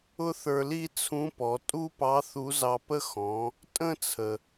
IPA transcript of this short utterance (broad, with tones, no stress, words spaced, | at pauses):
ʊ˥θə˞˧li˥t͡sʰũ˧˥ pɔ˩˧tʼu˥pɑ˧˥ θu˧˥zɑ˧pə˥ xɔ̃˩˧ | tʼə̃˥t͡sʰə˩